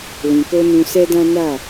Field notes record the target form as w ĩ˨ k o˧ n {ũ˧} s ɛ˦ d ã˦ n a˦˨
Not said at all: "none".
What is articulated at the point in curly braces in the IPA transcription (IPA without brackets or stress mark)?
ũ˧